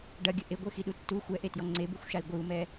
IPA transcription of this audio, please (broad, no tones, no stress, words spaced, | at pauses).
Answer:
ɖɐɡʲɘ ʔeɡʷɘxiɗu tːu xʷɛʔetjɔ ŋ͡ǀebuxʷʃai̯ ɡʷɨu̯mɛ